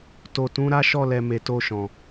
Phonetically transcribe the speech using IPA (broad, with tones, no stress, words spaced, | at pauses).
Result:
to˨tũ˨˦ ɾa˦ʃɔ˦˨lɛ˨ me˨to˧ʃɔ̃˨